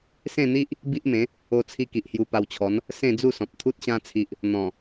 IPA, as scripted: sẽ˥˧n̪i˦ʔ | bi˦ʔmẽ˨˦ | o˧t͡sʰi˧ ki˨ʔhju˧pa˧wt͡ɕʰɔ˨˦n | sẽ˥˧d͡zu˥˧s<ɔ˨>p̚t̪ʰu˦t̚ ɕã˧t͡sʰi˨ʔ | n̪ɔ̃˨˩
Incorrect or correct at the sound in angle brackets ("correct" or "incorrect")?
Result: incorrect